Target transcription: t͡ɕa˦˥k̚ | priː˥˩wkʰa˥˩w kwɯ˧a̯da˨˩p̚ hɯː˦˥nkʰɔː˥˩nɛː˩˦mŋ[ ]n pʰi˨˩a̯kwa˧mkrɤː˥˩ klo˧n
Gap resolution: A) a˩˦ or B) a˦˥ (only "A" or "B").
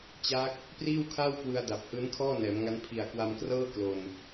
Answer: B